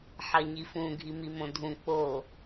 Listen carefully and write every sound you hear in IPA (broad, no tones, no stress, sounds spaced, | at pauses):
ħ ɐ ɲ i f ũ ɡʱ i m i m õ dʱ ũ k͡p o